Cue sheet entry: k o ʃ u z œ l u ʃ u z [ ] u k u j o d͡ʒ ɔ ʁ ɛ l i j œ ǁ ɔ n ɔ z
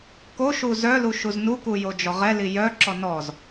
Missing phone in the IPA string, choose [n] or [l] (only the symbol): n